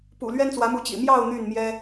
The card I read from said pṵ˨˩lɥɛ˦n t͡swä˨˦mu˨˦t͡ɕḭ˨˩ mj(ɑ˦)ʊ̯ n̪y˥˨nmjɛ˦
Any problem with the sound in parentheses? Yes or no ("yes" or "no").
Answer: yes